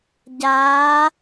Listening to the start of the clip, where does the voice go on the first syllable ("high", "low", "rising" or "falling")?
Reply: rising